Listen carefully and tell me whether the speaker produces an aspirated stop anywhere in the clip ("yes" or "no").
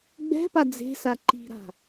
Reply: no